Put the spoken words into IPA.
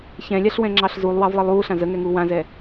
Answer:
ç ɛ̃ lʲ a ɬ w ɛ̃ ŋ͡ǁ ɑ ɬ z u lˠ w ɑ v lˠ ɘ lˠ uː ɬ ã z ə ŋ ɛ ŋ uː w ã z ɛ

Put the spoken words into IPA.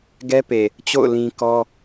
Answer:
ɡ ɛ˦ p e˨ | t͡ɕ o̰˦˨ ʊ̯ l ĩ˦ k ɔ˦

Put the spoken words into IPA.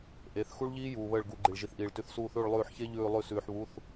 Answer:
ʔ e˩˧˩ θ x u˦˥ ɭ ʎ iː˦˥ j uː˩ β əː˧˩ ɭ ɡ u˩˧˩ ɡ͡ǃ i˩ ɭ ʒ i˩ θ ʔ iː˩ ɭ t ʉ˩˧˩ θ s uː˧˩ θ ʉː˧˩ ɭ lˠ ʉː˧˩ ħ ç e˦˥ ʎ ʉː˧˩ lˠ ʉ˧˩ s ʉː˩ ħ β u˩˧˩ θ

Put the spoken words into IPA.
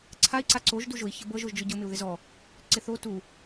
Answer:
ǀʰ a i̯ ǀ a ǀ o ʒ d u ʒ ʊ i̯ ç ɤ b ɤ ʒ o ʒ d͡ʒ ʊ ɟ ʊ m ɪ u̯ ð ɪ z ɔ | ǀ ɪ θ o t u

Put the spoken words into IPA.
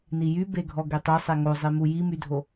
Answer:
n i j y b e ɡʱ ɔ ɡ e tˤ e sˤ e ŋ o zˤ i m u j i m y dʱ o

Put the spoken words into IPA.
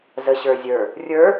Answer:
z ə ɕ ə˞ zʲ ə˞ | rʲ ə˞

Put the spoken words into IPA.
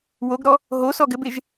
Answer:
w o ɡ ɾ ɔ | ɦ o s ɔ ɡ ɘ b e ʒ

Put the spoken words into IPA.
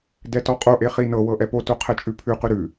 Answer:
d ɛ t ɔ qʼ o ʔ e χ i n ɤ w ɤ ʔ ɛ p o t o qʰ ɛ t͡ʃʼ ʉ pʰ ʉ q ʉ ɾ ʉ

